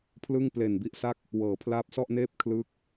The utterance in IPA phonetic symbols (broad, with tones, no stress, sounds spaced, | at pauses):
pʰ l ɯ˥˩ ŋ p l e˨˩ n b i˥˩ ʔ s a˥˩ k̚ | w ɤː˩˦ pʰ l aː˦˥ p̚ s ɔ˥˩ ʔ n eː˥˩ p̚ kʰ l ɯː˦˥ k̚